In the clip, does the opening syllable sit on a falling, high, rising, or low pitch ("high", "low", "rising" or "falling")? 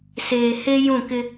low